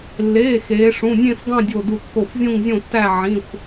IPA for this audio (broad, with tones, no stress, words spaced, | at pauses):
lːeː˩˧˩ xeː˩˧ʂũ˩˧˩ nʲẽ˥˧fɡɑ̃˥˧dʲo˧˩du˧˩ kːo˧˩fvʲũ˥˧ŋzʲõ˥˧tːæ˥˧ ʕĩ˩˧˩xʷ